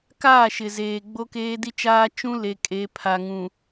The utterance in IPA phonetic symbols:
k aː˦˨ ʃ ɪ˨ z eː˨ ɡ͡b o˦ k eː˦ d i˦ t͡ʃ aː˦ t͡ʃ ũ˦ l e˨ kʼ e˨˦ pʰ a˨ ŋ ũ˨

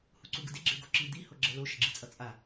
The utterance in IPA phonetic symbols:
h u ǀ u ɡ ɯ d e ɡ͡ǁ e ɡ o ǁ i d̪ i h o ɡ͡ǁ ɛ l o ʃ ʌ ɡ͡ǁ i t͡sʼ ʌ t͡sʼ a

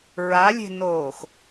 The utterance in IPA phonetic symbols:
ɹ a lʲ e̤ n oː x

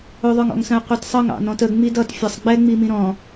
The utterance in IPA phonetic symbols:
ʊ ðˤ ə˞ ŋ ɔ̰ ŋ s ə̃ y̯ qʷ i t sˤ ʌ ŋ ɑ̰ n ɔ̃ t ə ŋ͡m i d ʌ t fʲ ʌ sˤ ɡ͡b ɛ ŋ͡m i m ĩ ɾ ɔ̃

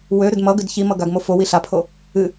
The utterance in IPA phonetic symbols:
w ø ɾ ʏ d m ʌ ɡ ʏ d ç i m ʌ ɡ a ɡ m o f o w i ɬ a pʰ o | ɨ

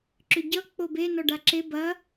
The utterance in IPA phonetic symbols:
ǁ ʏ ɟ ʌ k͡p o b e n ɔ ɖ a ǁ e b ɐ

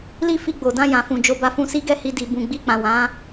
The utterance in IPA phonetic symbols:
l i˦ f i˧ ɡ͡b o˨ d ã˧ j ã˨ f ũ˨ d͡ʒ o˧ b a˧ f ũ˧ s i˦ ɡ ɛ˦˨ h i˧ d i˨ b ũ˨ ɡ͡b i˧ k͡p ã˨ w ã˨˦

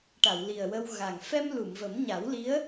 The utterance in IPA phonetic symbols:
ʈ a˨˩˨ w l i˨˩ ə̯ w ə˧ w ɣ a˨˩ ŋ f ɛ˧ m l u˨˩˨ m v ə˨˩˦ m ɲ a˨˩˦ w l i˧˥ ə̯

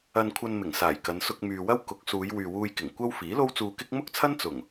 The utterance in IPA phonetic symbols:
ɐ˧ n kʷʰ ɐ˧ n m ɪ˨˩ ŋ s aː˨˩ j k ɐ˨˧ n s ʊ˧ k̚ m yː˨ w ɐ˥ w k ʊ˨˥ k̚ s uː˨˧ j w yː˨ w uː˧ j k ɪ˨˩ ŋ kʷ ɐ˥ w f iː˨˥ l o˥ w t͡s uː˧ k ɪ˥ k̚ m ʊ˥ k̚ t͡sʰ ɐ˥ n t͡s ʊ˨˩ ŋ

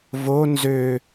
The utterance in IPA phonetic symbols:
v o n z ø

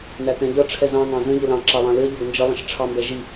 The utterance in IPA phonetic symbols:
n æ t ɛ̃ ʎ ʌ ʈ͡ʂʰ ɛ z ɑ̃ ŋ ɑ̃ z ə̃ ʎ ə l ɑ̃ ǁ ɑ lˠ ɑ̃ l ɪ ɐ̯ ʎ ɔ ɡ n d͡ʒ ə lˠ ə̃ ʃ ʈ͡ʂʰ ɑ m b ɛ ʒ i

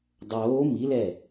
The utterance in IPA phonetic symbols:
dˤ oː m i l ɛ

